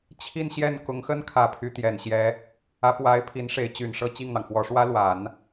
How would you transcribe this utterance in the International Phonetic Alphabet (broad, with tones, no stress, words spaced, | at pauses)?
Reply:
t͡ɕʰi˥˧n ɕjɛ˥˩n kʊ˧˥ŋxə˥n kʰä˧˥pʰy˧˥t̪jɛ˨˩nɕjɛ˧˥ | ä˧˥pwa˧˥ɪ̯pʰi˧˥n ʂe˧˥ɪ̯t͡ɕy˨˩nʂɤ˥˧ t͡ɕi˥˩ŋn̪ɑ˩ŋfwɔ˧˥ ʂwä˥lwa˨˩˦n